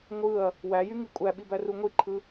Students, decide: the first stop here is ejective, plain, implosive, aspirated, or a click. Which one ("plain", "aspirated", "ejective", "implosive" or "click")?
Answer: ejective